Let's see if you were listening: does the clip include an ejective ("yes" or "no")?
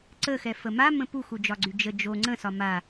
no